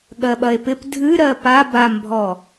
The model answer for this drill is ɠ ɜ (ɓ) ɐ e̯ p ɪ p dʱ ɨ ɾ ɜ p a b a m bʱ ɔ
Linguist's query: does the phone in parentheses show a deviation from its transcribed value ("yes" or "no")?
no